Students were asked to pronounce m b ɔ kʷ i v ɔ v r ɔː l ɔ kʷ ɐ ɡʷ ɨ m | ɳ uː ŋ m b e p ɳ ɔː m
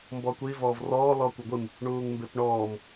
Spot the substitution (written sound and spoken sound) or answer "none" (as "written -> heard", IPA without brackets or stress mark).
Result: none